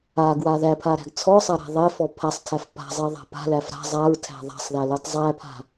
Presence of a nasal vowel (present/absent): absent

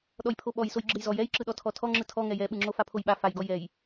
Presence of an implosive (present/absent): present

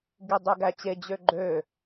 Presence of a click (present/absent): present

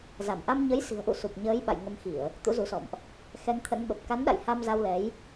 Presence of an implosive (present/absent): present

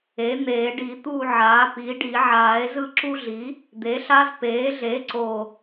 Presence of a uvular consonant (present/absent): absent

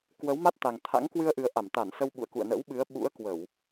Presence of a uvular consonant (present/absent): absent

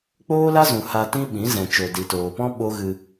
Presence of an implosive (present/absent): present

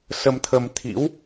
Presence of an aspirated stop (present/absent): present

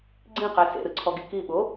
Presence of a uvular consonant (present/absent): present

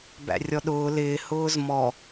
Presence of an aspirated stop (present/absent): absent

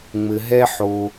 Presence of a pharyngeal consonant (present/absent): present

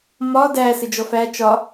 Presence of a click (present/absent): absent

